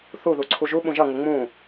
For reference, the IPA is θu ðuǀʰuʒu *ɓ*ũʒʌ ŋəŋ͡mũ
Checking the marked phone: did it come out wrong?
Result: no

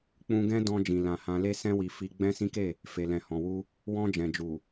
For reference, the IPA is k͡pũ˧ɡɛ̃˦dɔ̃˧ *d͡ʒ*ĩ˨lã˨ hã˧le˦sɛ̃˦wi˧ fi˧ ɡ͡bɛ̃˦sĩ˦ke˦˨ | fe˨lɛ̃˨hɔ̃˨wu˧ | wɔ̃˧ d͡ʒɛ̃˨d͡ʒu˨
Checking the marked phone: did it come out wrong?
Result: no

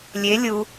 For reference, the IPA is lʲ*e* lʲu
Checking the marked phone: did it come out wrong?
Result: no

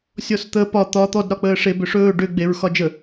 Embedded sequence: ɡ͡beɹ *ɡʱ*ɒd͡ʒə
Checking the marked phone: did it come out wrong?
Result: yes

